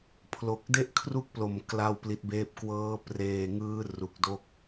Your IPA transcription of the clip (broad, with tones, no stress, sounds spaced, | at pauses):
pʰ l o˨˩ k̚ d e˥˩ ʔ kʰ r u˥˩ k̚ p l o˨˩ m k l a˥˩ w p l i˦˥ t̚ b eː˥˩ p̚ k w ɤː˦˥ p r eː˧ ŋ ɯː˦˥ r u˨˩ k̚ d o˦˥ k̚